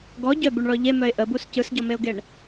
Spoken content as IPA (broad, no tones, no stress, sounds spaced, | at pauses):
ɡ ɔ ɟ œ b u ɳ ɭ ɔ ʎ e m œ ɪ̯ ʔ ə b u s c ɯ s ɟ ɔ m e ʊ̯ ɡ e ɳ